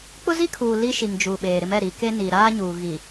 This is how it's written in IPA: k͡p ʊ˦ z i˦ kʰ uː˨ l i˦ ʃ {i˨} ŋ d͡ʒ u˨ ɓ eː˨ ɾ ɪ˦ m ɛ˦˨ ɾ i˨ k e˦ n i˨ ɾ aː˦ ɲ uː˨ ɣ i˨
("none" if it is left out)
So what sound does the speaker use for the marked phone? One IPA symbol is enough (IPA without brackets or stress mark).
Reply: i˨